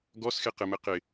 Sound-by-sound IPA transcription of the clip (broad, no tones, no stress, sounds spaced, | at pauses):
ɡ ɔ s x e q ɘ m ɘ q ɪ